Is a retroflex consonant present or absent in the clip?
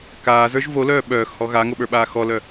absent